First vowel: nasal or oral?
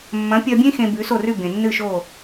nasal